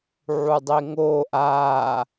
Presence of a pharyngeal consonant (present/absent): present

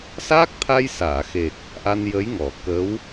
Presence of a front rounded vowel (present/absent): absent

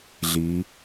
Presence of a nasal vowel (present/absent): absent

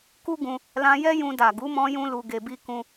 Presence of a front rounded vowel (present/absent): absent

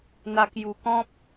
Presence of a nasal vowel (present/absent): present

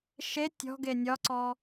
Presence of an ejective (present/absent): absent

